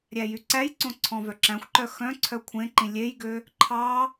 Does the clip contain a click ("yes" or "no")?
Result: yes